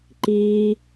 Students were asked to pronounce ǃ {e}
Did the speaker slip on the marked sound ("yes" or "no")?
yes